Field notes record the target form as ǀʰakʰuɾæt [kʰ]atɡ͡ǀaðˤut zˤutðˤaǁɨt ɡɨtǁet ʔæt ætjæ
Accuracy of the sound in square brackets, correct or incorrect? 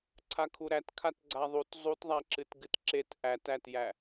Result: correct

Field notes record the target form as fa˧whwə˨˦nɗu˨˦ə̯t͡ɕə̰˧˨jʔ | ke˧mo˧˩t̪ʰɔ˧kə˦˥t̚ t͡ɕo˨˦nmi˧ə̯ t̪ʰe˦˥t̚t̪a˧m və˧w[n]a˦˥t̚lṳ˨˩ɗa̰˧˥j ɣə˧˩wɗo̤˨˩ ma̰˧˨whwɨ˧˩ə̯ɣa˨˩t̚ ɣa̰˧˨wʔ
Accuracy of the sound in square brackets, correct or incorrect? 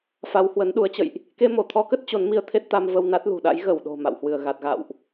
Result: correct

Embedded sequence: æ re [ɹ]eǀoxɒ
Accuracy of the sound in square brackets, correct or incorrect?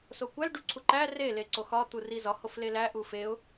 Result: incorrect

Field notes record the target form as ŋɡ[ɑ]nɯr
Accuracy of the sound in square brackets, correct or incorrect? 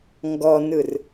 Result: incorrect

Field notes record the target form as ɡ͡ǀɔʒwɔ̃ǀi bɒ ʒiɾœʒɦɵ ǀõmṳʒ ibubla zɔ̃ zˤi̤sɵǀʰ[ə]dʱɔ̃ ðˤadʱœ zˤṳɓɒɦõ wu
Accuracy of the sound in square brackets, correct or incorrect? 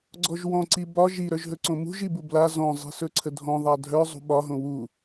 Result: correct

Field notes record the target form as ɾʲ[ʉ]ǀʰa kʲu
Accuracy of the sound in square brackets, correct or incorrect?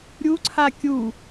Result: incorrect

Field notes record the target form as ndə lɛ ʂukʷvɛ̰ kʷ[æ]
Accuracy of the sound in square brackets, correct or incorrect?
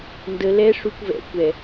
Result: incorrect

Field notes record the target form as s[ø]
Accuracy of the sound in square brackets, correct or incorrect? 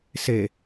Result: incorrect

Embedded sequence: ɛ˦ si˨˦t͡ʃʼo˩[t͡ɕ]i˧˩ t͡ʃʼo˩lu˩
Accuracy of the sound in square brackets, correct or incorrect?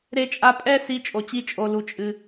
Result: correct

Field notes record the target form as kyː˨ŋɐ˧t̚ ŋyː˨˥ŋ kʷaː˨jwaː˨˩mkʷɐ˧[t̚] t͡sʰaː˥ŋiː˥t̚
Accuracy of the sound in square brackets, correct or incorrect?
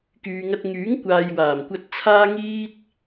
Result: correct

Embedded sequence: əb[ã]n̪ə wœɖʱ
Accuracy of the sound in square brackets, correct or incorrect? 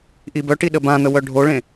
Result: correct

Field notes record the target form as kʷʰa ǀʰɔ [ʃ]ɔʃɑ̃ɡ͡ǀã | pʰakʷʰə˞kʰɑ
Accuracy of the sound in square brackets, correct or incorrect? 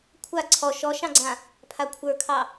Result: correct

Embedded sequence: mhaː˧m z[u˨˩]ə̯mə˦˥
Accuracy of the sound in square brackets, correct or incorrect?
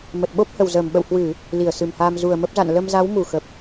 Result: correct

